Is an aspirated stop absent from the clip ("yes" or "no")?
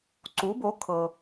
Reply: no